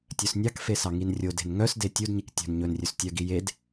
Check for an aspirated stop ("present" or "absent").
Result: absent